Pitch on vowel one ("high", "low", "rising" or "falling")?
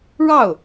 falling